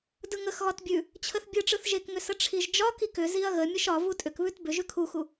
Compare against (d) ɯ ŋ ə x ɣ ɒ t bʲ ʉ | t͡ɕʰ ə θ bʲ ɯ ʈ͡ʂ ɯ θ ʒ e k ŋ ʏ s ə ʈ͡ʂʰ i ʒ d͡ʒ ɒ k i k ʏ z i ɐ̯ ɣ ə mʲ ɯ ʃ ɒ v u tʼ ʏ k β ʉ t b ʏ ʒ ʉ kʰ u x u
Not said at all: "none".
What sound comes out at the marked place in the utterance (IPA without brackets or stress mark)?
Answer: d